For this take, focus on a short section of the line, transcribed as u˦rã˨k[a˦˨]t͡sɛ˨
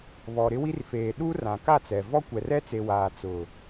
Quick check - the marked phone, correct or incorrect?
correct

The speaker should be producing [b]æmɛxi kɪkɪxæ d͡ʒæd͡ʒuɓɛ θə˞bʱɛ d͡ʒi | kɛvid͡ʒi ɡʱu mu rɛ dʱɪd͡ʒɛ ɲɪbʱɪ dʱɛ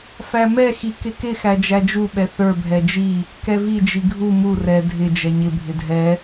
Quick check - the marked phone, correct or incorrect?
incorrect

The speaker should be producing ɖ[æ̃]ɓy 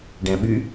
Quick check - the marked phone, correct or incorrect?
correct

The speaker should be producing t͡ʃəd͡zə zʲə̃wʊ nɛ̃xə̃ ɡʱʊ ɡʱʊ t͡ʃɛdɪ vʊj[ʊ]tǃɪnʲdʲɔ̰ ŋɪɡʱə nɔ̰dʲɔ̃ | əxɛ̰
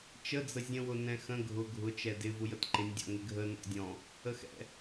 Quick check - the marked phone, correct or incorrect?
incorrect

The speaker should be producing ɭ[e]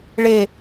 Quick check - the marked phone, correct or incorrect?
correct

